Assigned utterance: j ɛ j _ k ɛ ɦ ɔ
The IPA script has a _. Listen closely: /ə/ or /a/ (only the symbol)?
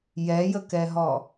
ə